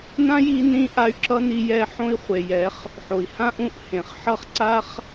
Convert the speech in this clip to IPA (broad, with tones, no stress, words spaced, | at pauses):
nã˦ji˧ nĩ˦ʔa˧y̯ ǁʌ˦ni˧ jɛ˧ ħõ˦i̯χʷe˨jɛ˨˦χ | ħo˨i̯hã˦ ʔũ˧ʔhẽ˨χ ħʌ˦χ ǀa˦χ